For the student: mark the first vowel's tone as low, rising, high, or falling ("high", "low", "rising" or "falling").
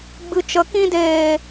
low